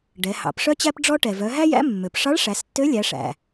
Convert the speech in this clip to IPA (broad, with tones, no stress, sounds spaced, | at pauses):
ɖ ɛ˩˧ h ɑ̰˩˧ p ʂ œ˥ t͡ɕ æ˥ p ɖ͡ʐ ɔ˥ ʈ ɛ˩ v œ˩˧ ɦ æ˥ j æ̰˧˥ mː ø˩ p ʂ ɑ˧˥ ɭ ʂ æ˩˧ s tː ø˧˥ lʲ æ˩˧ ʂ æ̰˩